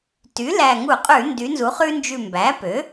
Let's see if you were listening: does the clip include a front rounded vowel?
yes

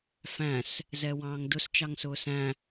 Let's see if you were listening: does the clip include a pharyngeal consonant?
no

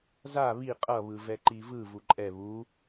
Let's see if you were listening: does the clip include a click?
yes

